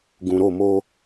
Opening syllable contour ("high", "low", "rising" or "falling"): low